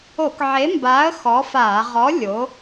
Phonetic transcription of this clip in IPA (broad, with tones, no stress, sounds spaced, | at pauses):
o˧˩˧ k ʕ e˨˥ m b aː˨˥ ə̯ x ɔ˨˥ f aː˧˩˧ ʁ ɔ˨˥ lʲ o˨˥